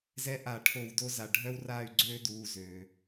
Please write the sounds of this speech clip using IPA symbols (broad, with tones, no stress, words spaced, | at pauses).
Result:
zɛ˦ʔa˧˩˧ ʈʰo˧˩˧wdo˦za˩˧˩ ɖʱœ˦wraː˦˨y̯ ɡ͡ǀøː˦duː˩˧˩zøː˩